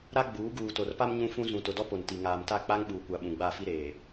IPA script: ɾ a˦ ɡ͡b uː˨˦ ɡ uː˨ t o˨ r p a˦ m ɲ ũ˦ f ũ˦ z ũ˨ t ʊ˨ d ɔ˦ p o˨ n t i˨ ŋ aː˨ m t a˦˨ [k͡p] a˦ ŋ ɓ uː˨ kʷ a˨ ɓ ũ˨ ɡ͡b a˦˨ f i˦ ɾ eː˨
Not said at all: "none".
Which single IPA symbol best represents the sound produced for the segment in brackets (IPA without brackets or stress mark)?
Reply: k͡p